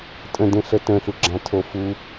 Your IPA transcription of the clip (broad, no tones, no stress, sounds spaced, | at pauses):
tʼ ə̃ d ẽ ɬ ə t ə̃ ɬ u ɡ͡ǁ ã tʰ o f u